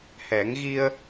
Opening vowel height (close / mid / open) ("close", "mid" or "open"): mid